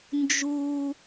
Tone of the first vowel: high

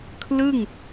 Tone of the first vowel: falling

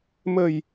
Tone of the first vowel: low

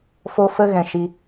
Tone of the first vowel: high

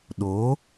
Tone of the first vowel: rising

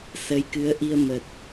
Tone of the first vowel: rising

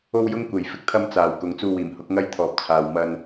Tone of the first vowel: high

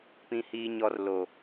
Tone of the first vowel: high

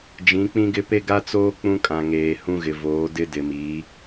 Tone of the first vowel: rising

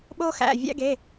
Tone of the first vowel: high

